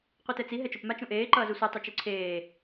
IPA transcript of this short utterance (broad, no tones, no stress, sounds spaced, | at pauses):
qʷ i t ɛ t͡s i ɦ ɛ t͡ʃ o p m a t͡ʃ ũ ʔ eː ǃ ʌː z u sʷ ɯ tˤ e t͡ʃ u ǀʰ eː